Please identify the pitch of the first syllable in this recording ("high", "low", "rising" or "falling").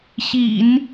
low